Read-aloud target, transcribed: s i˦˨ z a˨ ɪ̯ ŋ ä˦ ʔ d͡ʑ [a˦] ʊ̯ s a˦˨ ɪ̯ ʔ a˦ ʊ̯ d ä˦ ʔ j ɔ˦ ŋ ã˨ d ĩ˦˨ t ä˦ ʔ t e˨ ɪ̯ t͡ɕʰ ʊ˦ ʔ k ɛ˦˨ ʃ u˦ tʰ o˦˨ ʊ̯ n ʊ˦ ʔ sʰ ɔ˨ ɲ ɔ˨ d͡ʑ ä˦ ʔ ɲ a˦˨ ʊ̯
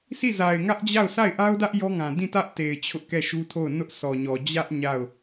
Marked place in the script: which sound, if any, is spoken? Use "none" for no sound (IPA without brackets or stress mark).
a˦˨